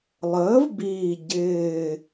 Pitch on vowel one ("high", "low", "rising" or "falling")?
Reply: rising